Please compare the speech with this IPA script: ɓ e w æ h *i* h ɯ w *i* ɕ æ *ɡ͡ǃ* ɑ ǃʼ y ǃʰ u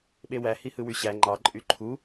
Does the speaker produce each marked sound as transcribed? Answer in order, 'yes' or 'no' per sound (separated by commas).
yes, no, no